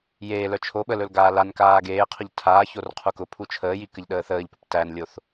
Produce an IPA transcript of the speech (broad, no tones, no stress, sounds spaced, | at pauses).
j eː l œ t͡ʃʰ o ɓ ə l ɵ l ɡ aː l a n k aː ɡ eː qʰ ʊ ʎ tʰ aː ç o r qʰ u k ʊ pʰ u t͡ʃʰ əː j i k ə ʎ ɗ əː θ əː ʎ p ɵ p t æ n lʲ o θ